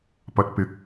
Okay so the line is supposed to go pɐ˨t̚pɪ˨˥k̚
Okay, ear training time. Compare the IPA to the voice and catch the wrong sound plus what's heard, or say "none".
none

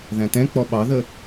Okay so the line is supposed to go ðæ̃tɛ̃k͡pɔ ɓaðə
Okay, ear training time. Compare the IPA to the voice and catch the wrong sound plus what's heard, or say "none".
a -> ɑ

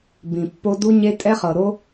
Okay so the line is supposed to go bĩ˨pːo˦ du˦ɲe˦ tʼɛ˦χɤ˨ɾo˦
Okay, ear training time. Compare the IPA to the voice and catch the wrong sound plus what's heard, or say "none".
none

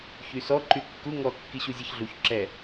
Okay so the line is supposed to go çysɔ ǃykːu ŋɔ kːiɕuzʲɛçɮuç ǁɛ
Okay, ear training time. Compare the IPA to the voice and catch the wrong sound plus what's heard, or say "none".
none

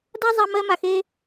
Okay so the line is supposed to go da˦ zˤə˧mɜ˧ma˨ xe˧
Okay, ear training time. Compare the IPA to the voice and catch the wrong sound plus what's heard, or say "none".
ə˧ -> a˧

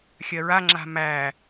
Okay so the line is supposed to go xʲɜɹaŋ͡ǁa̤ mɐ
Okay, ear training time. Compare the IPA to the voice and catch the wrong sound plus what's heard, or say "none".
ɐ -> æ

